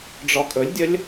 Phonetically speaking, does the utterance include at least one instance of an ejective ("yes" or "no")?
yes